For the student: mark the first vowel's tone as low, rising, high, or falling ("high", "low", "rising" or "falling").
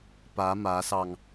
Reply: rising